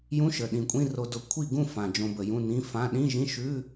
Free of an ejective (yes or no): no